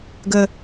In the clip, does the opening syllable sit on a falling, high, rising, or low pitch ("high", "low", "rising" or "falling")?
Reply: low